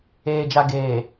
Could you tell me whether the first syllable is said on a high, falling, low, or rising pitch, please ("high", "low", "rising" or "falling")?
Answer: low